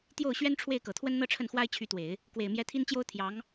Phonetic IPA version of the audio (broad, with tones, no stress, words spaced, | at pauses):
t̪jo˥˩ʊ̯ ɕɥɛ˥nʈ͡ʂʰwe˥˩ɪ̯kɤ˨˩t̪ʰwə˥n n̪ɤ˥˧ʈ͡ʂʰə˥˩nxwa˥ɪ̯ t͡ɕʰy˧˥t̪we˨˩˦ɪ̯ | kwe˨˩ɪ̯mjɛ˧˥ t̪ʰi˥nt͡ɕjo˥ʊ̯ t̪ʰjɑ˧˥ŋ